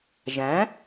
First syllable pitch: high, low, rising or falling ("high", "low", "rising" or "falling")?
rising